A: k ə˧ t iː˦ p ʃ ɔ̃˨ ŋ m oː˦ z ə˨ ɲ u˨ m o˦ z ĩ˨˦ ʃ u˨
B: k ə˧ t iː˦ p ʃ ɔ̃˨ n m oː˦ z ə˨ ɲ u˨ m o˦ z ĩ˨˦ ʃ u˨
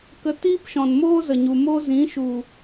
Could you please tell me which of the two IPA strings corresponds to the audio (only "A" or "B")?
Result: B